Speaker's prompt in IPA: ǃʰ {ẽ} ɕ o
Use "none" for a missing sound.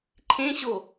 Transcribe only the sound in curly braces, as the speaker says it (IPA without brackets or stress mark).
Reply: ẽ